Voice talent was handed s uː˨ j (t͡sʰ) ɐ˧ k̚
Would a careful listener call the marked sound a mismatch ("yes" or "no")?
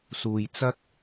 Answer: yes